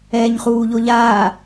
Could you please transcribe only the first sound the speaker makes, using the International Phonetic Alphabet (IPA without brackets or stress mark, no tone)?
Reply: ɛː